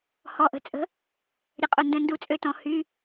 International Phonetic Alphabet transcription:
hɔ˨ʔə̤˨t͡sʼə̤˨˥ | ɾʲə˨qʼo˨ ndə̃˦˥ndu˦˥t͡sʼø˦˥tɔ̃˨˥ hy˧˥˧

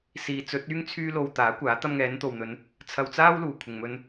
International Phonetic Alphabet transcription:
siː˨˧t͡sɵ˨˥t̚yː˥ŋ t͡sʰyː˥lo˧wt̪aː˨˥kʷaː˨˥ t̪ɐ˧mŋɛː˨˧nt̪o˨wn̪ɵ˨˧n | t͡sʰɐ˧wt͡saː˥w luː˨ kʷʰɪ˨ŋmɵ˧n

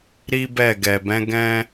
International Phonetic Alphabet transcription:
ɾi˦ bɛ˦˨ɡɛ˨ bɛ̃˨˦ ɡɛ̃˦

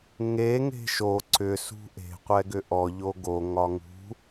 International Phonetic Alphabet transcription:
ŋe ŋe̤ʃo ǀʏ sṳʔe̤ qʷɛɡʏʔɔ ʎoɡo ŋɒŋṳ

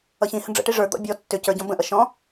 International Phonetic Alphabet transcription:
ʌçĩhə̃ ɖ͡ʐə̰ʈi ʐə˞d̪ɔ̰ bʲɔ tːʏ cə˞ɟɔ̃ bə̃ʔʌ ʃɔ̃

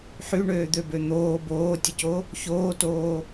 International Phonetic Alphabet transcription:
ħyɳøːd̪øbø n̪oː boːtʲɘco | çoːtoː

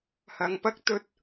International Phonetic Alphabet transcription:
hɐ˨˧ŋpɐ˥k̚ t̪ɵ˥t̚

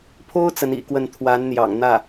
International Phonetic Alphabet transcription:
pʰo˥ʊ̯ t͡sə˧˥nḭ˨˩kwə˥˩n t̪ʰwa˧˥nn̪jɑ̰˨˩ŋn̪ä˥˩

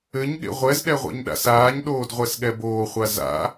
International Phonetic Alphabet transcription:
ɘɲɠḛ ʁʷɛzɗɛ ʁʷḛɲɗa̰saːɲɗoːd ʁʷɛsɠɛboːχʷa za̰

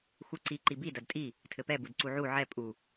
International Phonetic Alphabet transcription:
xuǀi ǃibi dɐdtʼi | tʰɘpɛ budǀuʕu ʕɛ pʼu

